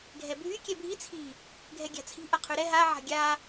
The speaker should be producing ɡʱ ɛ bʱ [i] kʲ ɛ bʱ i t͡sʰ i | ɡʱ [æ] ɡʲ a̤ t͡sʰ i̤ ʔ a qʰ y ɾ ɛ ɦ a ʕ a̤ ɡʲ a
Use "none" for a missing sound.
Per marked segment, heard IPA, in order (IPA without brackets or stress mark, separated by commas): y, ɛ